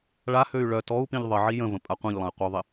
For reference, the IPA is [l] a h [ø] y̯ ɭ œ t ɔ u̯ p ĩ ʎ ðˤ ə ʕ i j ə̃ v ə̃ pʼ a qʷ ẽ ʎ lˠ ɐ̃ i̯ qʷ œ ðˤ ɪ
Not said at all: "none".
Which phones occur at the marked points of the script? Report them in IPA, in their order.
ɭ, ø

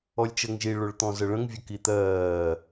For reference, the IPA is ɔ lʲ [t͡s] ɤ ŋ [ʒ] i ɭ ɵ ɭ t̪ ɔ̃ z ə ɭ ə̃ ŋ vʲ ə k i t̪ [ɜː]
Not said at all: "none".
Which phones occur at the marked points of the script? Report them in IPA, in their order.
t͡ʃ, ʒ, ɜː

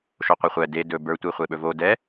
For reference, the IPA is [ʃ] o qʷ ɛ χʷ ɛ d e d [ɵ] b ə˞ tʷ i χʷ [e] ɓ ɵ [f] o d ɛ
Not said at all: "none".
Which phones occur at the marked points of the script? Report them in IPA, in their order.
ʃ, ɵ, e, v

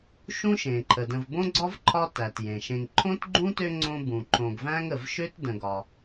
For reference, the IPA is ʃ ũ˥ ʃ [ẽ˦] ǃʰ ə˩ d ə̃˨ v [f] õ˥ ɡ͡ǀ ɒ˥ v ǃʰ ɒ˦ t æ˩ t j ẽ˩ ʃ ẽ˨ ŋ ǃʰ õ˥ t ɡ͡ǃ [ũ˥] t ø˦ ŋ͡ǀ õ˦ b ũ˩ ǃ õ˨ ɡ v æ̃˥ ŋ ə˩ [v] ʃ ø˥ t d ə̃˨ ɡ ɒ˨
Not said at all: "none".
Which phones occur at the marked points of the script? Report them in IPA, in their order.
ẽ˩, b, ũ˥, v

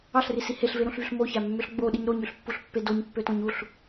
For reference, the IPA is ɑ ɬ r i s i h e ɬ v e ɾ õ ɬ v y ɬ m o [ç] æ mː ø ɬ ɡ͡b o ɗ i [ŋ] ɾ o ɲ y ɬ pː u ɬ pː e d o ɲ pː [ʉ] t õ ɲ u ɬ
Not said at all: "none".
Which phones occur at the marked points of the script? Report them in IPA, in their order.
ç, ɲ, ø

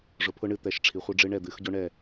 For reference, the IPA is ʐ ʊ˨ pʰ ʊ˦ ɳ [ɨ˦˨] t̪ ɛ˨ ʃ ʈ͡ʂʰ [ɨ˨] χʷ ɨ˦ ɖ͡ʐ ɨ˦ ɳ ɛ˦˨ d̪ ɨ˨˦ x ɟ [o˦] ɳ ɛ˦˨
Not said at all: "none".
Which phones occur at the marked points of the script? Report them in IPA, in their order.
ɨ˦˨, i˨, o˦

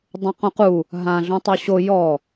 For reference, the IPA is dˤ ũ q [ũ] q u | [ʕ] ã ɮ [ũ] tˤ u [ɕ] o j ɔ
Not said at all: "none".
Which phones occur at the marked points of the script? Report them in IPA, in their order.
ũ, ɦ, ũ, ɕ

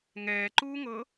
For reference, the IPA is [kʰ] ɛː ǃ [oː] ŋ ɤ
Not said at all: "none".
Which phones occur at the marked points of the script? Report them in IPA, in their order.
ŋ, uː

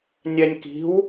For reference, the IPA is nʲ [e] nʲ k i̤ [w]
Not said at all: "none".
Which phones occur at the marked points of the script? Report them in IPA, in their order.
ɛ, w

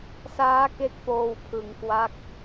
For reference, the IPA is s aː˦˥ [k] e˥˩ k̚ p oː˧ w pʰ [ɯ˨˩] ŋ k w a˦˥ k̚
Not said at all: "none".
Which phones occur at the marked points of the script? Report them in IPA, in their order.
k, ɯ˩˦

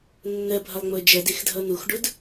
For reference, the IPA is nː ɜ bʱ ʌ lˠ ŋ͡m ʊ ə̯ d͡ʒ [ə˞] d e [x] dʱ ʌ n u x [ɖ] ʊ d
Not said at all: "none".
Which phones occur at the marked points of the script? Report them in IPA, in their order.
ɜ, x, ɖ

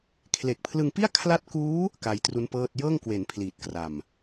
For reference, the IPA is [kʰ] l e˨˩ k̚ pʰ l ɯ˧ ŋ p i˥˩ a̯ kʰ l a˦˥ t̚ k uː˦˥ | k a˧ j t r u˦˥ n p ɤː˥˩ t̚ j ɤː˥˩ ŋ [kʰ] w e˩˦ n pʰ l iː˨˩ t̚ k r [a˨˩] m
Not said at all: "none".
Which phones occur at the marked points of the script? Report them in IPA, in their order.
kʰ, k, a˨˩

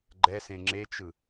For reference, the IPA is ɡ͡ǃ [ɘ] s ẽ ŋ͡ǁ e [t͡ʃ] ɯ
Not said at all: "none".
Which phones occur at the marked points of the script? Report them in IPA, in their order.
ɛ, t͡ʃ

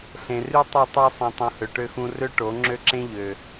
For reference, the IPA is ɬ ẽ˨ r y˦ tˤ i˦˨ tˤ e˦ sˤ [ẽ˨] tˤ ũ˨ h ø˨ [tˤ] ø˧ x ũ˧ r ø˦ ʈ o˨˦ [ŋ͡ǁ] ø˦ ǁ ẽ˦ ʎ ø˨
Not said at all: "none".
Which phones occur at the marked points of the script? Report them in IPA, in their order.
ẽ˨, ʈ, ŋ͡ǁ

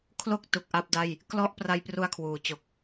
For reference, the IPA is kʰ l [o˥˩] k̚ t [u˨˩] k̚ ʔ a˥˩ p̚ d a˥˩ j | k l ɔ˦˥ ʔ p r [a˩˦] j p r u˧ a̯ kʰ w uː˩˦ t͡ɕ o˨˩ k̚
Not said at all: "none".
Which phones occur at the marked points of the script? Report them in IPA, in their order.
o˥˩, u˨˩, a˧

